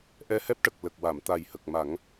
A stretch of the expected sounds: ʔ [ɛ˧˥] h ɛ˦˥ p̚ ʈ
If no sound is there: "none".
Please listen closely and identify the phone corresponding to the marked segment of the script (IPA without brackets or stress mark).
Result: ɛ˧